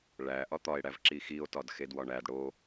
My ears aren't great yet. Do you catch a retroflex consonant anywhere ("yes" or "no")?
yes